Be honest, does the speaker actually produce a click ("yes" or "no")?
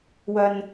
no